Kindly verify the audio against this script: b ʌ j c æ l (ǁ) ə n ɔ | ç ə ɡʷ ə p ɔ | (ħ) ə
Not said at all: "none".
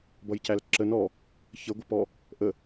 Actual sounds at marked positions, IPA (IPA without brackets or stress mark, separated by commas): ǁ, ʔ